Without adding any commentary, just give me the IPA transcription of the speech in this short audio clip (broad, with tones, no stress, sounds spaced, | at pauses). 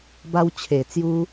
b a˧ w t͡ɕʰ e˨˩ t͡s j u˦